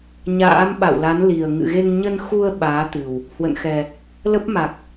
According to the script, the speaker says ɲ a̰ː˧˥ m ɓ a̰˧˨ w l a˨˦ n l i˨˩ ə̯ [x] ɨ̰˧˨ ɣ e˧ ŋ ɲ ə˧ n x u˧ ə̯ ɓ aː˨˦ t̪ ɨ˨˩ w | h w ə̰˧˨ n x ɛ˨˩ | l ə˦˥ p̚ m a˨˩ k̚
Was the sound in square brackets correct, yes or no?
no